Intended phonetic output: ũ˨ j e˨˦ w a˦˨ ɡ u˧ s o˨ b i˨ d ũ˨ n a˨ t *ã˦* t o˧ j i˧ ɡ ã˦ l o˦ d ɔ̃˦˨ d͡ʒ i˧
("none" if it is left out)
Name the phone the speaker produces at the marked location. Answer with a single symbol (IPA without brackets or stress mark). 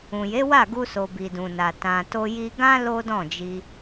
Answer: ã˨